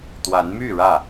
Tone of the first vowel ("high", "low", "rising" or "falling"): rising